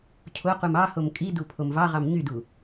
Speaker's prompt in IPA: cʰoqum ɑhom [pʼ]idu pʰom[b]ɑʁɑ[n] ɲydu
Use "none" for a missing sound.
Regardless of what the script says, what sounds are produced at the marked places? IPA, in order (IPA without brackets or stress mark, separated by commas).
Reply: kʼ, v, m